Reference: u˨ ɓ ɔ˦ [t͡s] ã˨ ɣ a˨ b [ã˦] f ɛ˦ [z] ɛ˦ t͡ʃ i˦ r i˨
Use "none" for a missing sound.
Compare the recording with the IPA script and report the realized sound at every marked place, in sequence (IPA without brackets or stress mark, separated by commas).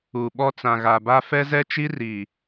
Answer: t͡s, a˦, z